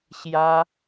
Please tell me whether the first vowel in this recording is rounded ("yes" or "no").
no